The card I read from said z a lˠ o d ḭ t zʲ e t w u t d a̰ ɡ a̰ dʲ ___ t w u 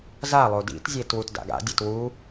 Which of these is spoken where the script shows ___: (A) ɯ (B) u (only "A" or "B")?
A